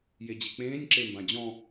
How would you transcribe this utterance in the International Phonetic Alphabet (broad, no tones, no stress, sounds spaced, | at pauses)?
j e d͡ʑ i k͡p ẽː nʲ ǁ e m b ã d͡ʑ ɔ̃